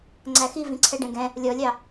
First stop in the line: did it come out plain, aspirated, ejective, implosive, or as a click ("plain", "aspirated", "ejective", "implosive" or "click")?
click